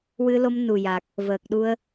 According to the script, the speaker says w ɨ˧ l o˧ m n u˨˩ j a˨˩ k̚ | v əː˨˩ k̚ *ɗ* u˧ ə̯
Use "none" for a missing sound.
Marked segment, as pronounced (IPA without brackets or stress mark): ɗ